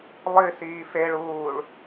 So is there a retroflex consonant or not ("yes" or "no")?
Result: yes